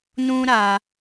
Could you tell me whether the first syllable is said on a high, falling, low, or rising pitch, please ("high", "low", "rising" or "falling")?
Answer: high